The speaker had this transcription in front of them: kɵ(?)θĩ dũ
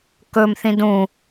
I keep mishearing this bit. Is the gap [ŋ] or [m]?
m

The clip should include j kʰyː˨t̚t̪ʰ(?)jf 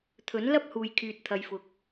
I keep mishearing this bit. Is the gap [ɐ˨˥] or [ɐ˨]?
ɐ˨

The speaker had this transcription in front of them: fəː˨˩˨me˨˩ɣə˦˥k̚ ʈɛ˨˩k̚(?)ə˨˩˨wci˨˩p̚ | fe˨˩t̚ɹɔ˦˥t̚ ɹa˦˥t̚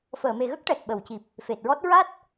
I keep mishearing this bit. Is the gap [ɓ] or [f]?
ɓ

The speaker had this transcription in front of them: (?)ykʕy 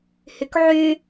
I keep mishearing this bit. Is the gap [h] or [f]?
h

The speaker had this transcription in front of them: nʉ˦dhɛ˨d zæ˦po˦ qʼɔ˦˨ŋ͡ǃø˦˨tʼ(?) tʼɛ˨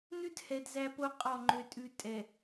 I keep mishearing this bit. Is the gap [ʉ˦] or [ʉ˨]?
ʉ˦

